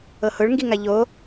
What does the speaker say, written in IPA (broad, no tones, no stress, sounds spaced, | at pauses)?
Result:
ɤ h ʊ ɭ ŋ ɡ i ŋ a ʎ o